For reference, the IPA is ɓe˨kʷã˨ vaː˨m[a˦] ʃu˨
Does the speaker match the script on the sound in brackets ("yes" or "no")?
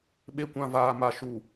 no